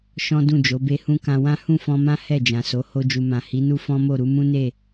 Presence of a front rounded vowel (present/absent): absent